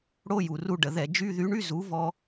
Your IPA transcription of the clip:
ɽ o˧˥˧ j u˩ r u˧ ɖ ə˩ ð ɛ˧˩˧ d͡ʒ y˧˥˧ ð y˨˥ ɳ y˧˥˧ z u˨˥ v ɔ˧

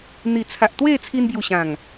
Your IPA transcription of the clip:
n̪ i˨˩ t͡sʰ a˨ ʔ t̪ w e˥˧ t͡sʰ i˧ n b j u˨˩ ɕ ã˨˩ ŋ

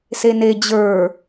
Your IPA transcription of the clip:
s e n e d͡ʑ ə˞

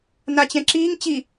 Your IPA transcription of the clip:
n a t͡ɕ ɛ̃ ǁ iː ŋ t͡ɕ i

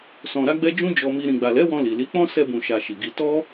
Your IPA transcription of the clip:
s ɔ̃˨ ɾ a˧ ɡ͡b ɛ˧ d͡ʒ ũ˦ d͡ʒ ɔ˧ m i˧ ɾ ĩ˨ ɡ͡b a˨ l ɛ˨˦ w ɔ̃˧ l i˨ l i˨˦ k͡p ɔ̃˦ s ɛ˧ b ũ˨ ʃ a˨ ʃ i˨ ɡ i˧ t ɔ˦

